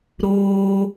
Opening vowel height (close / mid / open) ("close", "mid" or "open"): mid